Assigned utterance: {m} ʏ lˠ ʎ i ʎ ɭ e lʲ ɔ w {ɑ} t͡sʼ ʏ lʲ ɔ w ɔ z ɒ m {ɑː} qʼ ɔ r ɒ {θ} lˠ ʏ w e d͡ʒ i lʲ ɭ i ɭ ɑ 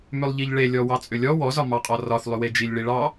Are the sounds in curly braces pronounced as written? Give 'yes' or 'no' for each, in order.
yes, yes, no, yes

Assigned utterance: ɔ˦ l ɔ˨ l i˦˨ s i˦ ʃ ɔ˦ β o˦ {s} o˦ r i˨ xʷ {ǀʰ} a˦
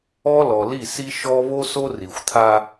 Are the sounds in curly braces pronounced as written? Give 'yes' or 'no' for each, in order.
yes, no

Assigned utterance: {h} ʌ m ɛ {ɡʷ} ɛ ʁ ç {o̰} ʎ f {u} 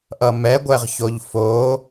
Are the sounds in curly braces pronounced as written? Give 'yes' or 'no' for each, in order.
no, yes, no, no

